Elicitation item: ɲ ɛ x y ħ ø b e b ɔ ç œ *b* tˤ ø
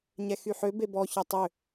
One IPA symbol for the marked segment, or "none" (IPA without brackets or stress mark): none